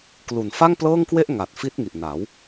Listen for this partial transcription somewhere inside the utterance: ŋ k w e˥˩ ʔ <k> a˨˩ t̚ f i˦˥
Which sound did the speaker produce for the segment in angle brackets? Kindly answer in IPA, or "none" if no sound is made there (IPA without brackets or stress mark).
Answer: ŋ